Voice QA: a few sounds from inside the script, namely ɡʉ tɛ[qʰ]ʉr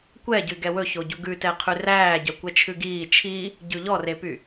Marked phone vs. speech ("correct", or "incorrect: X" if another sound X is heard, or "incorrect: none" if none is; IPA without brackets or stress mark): correct